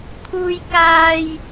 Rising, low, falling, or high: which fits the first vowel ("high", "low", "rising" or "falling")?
high